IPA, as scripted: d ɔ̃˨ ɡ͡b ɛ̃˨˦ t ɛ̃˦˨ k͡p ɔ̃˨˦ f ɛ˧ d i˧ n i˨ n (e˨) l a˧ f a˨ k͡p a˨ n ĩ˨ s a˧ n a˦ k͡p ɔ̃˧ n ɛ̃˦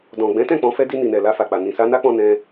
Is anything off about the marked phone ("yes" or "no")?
yes